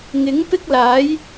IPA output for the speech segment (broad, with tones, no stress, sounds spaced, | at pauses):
ŋ ɪ˨˥ ŋ p ɪ˥ k̚ l aː˨˥ j